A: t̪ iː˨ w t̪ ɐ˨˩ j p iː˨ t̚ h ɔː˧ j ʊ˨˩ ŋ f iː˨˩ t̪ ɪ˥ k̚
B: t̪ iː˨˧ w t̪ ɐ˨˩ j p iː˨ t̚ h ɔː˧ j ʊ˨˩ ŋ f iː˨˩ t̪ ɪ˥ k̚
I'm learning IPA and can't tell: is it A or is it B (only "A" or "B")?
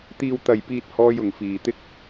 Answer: A